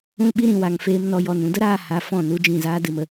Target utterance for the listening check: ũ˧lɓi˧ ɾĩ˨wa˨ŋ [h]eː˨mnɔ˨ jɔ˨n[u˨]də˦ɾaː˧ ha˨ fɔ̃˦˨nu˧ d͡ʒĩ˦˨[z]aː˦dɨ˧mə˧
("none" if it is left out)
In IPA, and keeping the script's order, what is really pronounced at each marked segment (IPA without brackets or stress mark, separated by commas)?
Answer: f, ũ˨, z